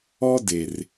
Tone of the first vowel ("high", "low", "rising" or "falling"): high